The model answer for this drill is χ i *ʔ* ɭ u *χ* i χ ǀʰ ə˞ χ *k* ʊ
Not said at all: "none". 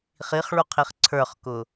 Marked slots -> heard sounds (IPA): χ, qʰ, k

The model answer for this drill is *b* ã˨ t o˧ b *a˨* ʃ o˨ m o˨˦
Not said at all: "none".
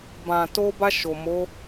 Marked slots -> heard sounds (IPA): b, a˧

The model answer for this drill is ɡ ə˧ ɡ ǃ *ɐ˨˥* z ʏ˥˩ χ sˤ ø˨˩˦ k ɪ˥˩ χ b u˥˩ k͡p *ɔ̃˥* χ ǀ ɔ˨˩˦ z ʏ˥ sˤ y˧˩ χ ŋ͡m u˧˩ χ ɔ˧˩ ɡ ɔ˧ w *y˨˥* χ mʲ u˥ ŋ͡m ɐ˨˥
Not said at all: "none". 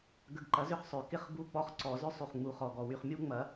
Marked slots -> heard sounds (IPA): ɐ˨˥, ɔ˥, y˧

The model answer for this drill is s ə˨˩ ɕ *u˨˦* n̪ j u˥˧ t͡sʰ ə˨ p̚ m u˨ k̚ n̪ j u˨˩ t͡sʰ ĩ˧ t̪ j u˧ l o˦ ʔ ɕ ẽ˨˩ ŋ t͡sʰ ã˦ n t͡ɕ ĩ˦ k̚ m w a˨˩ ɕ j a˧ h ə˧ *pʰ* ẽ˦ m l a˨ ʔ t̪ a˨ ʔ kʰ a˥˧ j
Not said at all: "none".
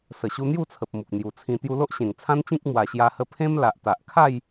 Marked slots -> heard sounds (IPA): u˧, pʰ

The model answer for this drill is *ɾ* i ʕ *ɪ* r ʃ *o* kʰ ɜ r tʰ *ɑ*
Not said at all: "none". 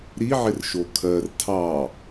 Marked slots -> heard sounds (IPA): ɾ, ɪ, o, ɑ

